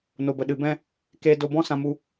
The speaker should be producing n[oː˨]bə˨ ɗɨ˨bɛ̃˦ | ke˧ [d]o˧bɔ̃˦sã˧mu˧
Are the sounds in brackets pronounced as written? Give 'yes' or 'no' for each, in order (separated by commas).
no, yes